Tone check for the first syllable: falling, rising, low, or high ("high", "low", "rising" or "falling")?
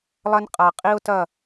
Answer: high